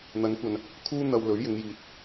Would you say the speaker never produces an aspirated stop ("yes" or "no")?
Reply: no